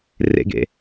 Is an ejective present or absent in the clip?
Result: absent